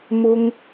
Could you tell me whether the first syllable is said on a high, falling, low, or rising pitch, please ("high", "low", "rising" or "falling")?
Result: high